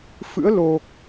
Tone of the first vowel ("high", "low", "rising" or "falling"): rising